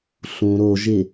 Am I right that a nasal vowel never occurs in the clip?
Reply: no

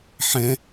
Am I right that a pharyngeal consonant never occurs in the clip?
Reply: no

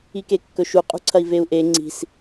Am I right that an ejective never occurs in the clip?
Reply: no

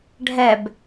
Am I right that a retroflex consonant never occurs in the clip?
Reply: no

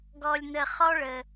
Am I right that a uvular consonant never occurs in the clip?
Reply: no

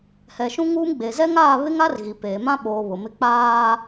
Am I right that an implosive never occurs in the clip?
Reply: no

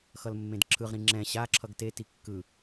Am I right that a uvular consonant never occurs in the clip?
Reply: no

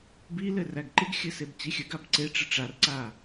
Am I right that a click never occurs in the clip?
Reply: no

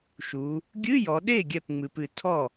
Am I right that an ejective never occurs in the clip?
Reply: yes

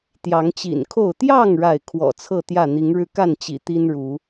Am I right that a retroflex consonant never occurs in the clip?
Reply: no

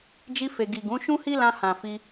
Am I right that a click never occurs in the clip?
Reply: yes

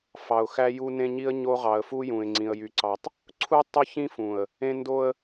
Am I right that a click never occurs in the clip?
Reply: no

